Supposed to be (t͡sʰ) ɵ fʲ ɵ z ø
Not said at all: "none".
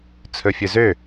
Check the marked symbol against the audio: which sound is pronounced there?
t͡sʰ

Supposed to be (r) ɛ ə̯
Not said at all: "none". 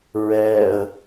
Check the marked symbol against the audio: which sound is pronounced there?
ɹ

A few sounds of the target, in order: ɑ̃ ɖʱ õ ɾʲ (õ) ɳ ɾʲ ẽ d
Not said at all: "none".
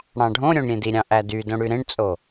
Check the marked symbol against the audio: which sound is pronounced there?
õ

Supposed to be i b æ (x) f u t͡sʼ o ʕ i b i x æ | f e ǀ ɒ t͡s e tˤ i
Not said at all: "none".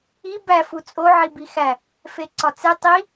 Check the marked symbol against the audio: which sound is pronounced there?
none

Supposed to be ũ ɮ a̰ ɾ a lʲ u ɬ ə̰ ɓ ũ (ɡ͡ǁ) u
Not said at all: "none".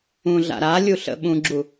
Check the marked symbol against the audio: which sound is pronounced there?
ɡ͡ǁ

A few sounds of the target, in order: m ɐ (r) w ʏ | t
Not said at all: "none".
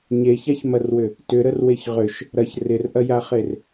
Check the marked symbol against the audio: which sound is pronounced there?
r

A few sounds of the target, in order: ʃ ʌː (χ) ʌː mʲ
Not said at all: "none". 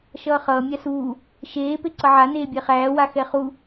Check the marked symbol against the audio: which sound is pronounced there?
χ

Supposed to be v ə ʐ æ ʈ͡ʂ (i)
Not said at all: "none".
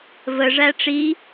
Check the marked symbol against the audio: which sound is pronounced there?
i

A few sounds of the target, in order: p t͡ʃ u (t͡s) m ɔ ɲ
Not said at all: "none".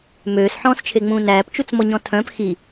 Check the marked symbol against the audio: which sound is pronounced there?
t͡s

